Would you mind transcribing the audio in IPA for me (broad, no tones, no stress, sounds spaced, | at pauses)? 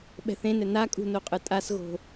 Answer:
ɓ ɛ̤ θ ẽ n ɛ n a kʼ ṳ n o qʼ ɯ tʼ a s ɣ o̤